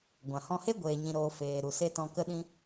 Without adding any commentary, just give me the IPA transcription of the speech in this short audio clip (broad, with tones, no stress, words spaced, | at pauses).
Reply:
ɡʷã˨hɔ̃˧he˦ ɡʷeː˨ɲĩ˨ɾoː˨ feː˨ ɾu˨se˧ tɔ̃˧kə˦ɗĩ˦